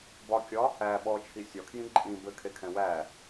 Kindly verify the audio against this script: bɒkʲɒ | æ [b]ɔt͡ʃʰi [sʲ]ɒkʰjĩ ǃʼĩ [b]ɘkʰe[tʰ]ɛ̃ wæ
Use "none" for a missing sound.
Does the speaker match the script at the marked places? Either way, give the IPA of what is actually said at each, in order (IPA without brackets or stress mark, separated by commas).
ɓ, sʲ, b, kʰ